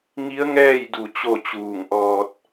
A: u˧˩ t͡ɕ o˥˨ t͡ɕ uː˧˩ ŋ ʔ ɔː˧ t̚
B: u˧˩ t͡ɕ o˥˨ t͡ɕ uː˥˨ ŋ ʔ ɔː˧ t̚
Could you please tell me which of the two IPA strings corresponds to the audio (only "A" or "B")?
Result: A